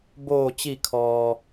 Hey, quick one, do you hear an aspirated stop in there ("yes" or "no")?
yes